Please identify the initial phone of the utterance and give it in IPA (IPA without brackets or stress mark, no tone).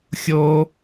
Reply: xʲ